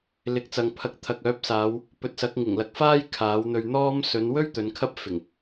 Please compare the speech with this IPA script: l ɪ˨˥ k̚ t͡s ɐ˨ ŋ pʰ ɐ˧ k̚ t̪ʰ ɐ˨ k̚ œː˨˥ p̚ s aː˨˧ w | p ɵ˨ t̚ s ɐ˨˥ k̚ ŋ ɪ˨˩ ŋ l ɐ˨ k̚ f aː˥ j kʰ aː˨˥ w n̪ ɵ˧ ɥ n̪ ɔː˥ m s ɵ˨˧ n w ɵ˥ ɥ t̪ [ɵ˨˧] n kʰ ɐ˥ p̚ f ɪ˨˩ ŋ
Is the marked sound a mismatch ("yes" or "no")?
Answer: no